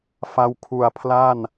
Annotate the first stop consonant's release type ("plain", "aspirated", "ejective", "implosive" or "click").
aspirated